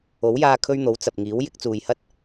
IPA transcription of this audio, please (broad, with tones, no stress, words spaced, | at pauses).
o˨˥wjaː˧kʰɵ˧ɥn̪o˨˥w t͡sɐ˨p̚ŋiː˨˥w jɪ˨˥k̚t͡suː˨jhɐ˥t̚